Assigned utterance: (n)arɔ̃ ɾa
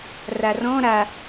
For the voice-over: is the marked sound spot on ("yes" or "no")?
no